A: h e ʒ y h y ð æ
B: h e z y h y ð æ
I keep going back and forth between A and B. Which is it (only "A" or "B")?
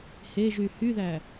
A